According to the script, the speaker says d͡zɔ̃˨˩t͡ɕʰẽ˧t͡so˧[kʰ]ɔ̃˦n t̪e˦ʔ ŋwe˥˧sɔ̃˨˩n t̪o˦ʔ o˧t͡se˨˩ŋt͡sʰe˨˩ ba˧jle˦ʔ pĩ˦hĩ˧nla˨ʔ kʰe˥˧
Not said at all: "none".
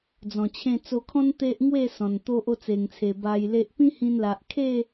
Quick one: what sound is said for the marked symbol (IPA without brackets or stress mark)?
kʰ